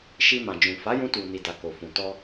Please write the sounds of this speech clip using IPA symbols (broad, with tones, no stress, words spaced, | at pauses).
ʃi˧mã˨d͡ʒũ˨ fa˨˦jũ˧tu˨ ni˨da˨ ko˨fũ˨ tɔ˧